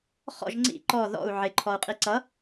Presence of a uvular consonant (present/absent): present